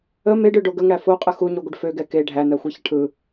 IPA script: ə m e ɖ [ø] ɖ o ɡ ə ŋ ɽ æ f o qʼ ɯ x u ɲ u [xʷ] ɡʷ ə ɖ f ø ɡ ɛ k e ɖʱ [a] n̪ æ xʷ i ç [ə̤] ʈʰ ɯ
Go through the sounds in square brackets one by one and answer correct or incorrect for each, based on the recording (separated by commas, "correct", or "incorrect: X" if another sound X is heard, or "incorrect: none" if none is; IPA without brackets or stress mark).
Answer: correct, incorrect: none, incorrect: æ, incorrect: ə